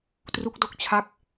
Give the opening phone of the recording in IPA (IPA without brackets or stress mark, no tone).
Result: t